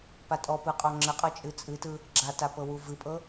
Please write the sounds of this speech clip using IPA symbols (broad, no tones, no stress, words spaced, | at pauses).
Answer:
patʼɔpɯ qʼɔŋ͡ǁəqʼɤ t͡ʃʼɨt͡sʼɨtɯ | ɡ͡ǁata pɤwuvɨpʼɤ